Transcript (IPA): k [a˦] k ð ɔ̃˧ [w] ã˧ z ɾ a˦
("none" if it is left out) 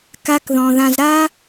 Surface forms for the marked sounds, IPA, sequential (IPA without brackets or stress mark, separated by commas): a˦, ð